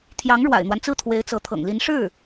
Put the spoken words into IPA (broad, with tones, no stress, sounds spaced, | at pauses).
t̪ʰ j ɑ˧˥ ŋ ɻ w a̰˨˩ ɪ̯ n̪ w a˦ n t͡s ɹ̩˥˩ t̪ʰ w e˧˥ ɪ̯ t͡s ɤ˧˥ t̪ʰ ɤ̰˨˩ ŋ l i˧˥ n ʂ ɻ̩˥˩